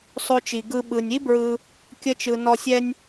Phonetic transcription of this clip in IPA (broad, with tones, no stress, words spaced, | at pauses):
sˤo˨t͡ʃi˩ɡɯ˨ ɓɯ˩nʲi˦ bɹɯ˨ | kʲə˨t͡ʃɯ˩ nɔ˨sʲɛ˦nʲ